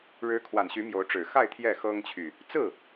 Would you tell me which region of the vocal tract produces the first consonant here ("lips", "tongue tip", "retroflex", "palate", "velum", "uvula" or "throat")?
retroflex